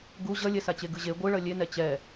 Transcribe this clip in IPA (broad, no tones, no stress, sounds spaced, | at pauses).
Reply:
ɡ u ʑ ʌ lʲ ɛ s a t͡ɕ e ɡ ɯ ʑ e ɡʷ ɯ ɭ ʌ lʲ e n ɛ t͡ɕ ɛ